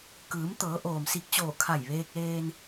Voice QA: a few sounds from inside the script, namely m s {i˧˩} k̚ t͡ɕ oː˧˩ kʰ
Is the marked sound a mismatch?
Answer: no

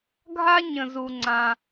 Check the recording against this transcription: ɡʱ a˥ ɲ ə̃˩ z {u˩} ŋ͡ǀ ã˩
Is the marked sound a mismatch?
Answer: no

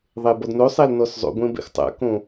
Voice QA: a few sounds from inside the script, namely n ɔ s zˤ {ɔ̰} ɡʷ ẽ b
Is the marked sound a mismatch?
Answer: yes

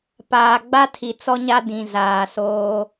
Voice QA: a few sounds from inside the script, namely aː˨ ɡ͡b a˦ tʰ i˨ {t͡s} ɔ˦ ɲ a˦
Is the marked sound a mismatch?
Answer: no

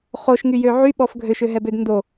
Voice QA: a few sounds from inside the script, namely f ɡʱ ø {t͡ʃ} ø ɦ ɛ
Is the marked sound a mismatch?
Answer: yes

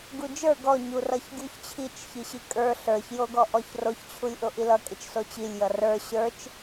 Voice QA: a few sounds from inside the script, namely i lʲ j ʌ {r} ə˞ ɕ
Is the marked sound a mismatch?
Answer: no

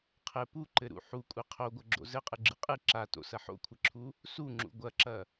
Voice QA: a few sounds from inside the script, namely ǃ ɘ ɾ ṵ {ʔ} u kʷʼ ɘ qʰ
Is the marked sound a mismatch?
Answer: yes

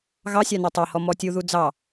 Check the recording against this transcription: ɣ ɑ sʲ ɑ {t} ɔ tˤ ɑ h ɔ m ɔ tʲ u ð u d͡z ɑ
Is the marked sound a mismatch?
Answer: yes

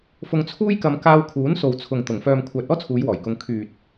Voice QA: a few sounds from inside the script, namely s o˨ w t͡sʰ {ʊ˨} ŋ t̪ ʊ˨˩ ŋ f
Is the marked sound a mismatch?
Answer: no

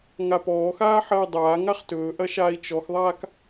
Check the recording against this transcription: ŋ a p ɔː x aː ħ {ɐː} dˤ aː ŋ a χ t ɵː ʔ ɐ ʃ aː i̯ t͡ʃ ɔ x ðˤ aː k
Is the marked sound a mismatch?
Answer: no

